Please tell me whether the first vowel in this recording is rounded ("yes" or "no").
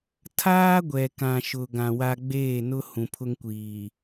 no